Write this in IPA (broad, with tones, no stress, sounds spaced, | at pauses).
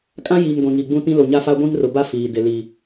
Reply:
kʼ ã˦ j iː˨ ŋ ɡʷ ĩ˨ ŋ i˨ ɡ͡b ũ˦ t ĩ˦ l o˨ ɲ a˦ f a˦ ɡʷ ĩ˦ ŋ r ʊ˨ b a˦ f iː˨ d ɪ˨ l i˨